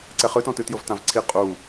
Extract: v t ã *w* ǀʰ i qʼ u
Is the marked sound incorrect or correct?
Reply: incorrect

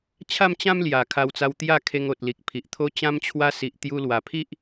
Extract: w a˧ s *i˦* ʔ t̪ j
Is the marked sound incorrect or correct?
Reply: incorrect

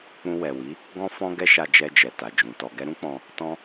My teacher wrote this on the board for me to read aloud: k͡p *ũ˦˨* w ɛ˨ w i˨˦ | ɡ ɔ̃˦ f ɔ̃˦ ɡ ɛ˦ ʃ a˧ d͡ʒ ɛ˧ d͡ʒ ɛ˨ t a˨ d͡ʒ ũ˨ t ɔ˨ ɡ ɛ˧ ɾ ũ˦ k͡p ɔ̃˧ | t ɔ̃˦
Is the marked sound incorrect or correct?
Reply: incorrect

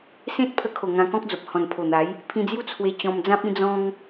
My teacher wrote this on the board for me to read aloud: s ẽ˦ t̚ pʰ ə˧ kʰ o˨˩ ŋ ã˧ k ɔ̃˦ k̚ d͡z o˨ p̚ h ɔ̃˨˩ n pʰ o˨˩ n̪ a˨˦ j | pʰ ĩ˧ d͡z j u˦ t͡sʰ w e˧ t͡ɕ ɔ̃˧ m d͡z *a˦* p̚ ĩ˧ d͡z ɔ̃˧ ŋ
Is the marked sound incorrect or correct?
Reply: incorrect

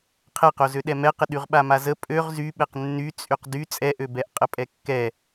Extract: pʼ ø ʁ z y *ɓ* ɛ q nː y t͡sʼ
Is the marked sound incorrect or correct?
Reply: correct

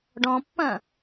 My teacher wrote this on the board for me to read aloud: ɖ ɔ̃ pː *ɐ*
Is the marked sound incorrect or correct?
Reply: incorrect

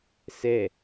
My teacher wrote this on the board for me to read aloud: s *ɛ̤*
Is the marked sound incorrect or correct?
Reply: incorrect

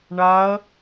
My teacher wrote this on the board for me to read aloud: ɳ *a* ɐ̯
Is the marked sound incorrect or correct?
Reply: correct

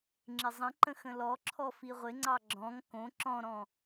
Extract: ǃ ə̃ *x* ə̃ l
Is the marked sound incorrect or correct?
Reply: correct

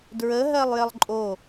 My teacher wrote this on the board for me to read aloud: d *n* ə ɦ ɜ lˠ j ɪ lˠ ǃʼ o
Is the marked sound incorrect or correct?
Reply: incorrect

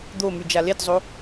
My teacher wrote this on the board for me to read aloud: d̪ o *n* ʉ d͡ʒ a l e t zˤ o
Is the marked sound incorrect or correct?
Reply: incorrect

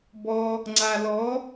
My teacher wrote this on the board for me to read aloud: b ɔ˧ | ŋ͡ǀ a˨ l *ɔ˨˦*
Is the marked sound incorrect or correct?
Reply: correct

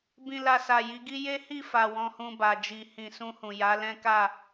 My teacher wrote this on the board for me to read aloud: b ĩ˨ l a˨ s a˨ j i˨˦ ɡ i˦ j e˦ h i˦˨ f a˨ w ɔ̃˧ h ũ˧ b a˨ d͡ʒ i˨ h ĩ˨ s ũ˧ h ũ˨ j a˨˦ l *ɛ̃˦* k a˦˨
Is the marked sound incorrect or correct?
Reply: correct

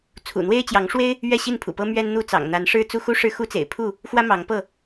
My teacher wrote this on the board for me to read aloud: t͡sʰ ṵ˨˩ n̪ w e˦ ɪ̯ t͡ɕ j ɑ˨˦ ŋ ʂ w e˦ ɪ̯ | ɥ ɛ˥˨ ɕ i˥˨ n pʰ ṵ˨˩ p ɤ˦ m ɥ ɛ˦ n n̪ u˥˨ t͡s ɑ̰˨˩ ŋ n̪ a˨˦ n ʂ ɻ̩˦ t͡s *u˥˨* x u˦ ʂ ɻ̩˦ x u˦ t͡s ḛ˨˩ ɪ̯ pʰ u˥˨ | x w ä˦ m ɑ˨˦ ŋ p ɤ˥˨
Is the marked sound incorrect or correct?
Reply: incorrect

